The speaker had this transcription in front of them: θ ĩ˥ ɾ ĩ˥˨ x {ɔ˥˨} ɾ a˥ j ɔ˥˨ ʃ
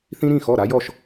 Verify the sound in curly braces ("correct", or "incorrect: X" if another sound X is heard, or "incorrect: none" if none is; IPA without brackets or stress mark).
correct